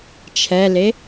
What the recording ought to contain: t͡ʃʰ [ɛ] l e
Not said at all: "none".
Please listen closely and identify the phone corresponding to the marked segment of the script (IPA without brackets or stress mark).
ɛ